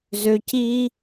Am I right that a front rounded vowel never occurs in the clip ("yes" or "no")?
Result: no